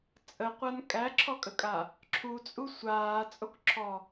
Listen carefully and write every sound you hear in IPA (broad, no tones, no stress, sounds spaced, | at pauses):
t͡sʼ ə qʷ a n kʼ æ ǁʰ ɔ kʼ ə kʼ a | ǁʰ u t͡sʼ u sʷ aː t͡sʼ o k ǁʰ ɔ